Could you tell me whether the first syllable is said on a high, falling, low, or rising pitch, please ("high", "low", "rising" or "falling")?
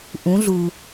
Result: rising